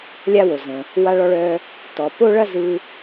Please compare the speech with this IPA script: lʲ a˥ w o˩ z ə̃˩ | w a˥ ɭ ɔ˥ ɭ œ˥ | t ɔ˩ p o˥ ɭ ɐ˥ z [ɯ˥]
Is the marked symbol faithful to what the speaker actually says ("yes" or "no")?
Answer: yes